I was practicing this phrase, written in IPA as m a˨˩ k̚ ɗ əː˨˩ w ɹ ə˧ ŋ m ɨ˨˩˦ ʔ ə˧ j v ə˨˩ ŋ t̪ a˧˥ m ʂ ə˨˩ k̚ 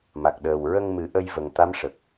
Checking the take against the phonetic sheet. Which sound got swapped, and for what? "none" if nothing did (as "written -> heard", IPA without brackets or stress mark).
none